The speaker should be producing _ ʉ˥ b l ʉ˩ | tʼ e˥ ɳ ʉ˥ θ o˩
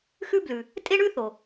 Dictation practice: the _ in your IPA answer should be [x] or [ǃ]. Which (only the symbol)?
x